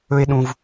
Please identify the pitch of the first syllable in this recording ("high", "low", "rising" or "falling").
high